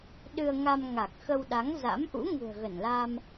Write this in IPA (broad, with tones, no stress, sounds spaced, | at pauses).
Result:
ɗ ɨ˧ ə̯ ŋ a˧ m ŋ a˨˩ k̚ x ə˧ w ɗ a˨˦ ŋ z a̰˧˥ m ʔ ṵ˧˥ ŋ ṳ˨˩ ə̯ ɣ ə˧˩ n l a˧ m